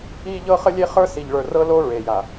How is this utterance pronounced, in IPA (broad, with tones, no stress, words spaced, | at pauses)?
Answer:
i˦ ʎɤ˦χə˦ lʲe˦χə˞˦si˨ʎ ɭə˞˨rɤ˦lo˦ ɹe˨ja˨